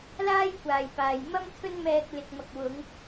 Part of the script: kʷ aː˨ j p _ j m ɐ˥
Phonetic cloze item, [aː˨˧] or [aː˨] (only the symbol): aː˨